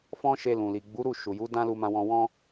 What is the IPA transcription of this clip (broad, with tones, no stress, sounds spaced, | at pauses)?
f ɔ̃˦ ʃ e˧ l ũ˨ l i˨ ɡ͡b u˨˦ ɾ u˦˨ ʃ u˨ j u˨˦ d ã˦ l u˧ m ã˧ w ɔ̃˧ w ɔ̃˦